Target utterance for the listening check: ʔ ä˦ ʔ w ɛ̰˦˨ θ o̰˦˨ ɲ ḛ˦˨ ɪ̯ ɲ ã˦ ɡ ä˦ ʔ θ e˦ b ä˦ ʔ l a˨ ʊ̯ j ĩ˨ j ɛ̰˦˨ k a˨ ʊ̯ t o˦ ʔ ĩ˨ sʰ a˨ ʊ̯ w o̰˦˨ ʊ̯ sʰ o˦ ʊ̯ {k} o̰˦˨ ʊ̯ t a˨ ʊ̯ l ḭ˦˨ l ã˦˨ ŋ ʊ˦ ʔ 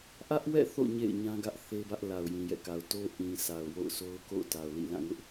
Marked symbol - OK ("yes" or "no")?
yes